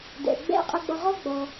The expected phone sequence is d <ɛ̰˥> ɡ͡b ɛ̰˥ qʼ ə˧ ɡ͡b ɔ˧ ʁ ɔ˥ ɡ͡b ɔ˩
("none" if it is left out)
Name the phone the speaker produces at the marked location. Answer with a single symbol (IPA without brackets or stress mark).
ɛ̰˩